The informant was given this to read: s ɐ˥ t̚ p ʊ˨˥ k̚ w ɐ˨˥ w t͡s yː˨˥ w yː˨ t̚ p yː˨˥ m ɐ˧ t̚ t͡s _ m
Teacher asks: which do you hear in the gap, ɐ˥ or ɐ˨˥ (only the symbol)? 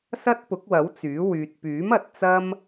ɐ˥